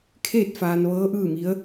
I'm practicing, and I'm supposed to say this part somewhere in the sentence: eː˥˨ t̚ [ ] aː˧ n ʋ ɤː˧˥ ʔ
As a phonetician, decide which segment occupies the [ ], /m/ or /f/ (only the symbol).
f